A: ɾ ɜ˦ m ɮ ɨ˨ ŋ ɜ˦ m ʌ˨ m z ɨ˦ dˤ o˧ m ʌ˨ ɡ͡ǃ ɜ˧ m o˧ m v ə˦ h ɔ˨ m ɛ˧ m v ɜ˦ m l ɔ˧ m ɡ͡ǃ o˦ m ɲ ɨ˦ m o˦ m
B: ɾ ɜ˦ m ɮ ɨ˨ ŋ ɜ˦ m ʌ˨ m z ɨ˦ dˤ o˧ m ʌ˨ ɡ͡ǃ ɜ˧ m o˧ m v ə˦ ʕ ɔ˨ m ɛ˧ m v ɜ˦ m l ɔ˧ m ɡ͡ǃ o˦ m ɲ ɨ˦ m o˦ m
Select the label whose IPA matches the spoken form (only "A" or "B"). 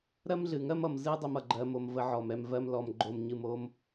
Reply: B